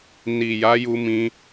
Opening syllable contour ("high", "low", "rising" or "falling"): low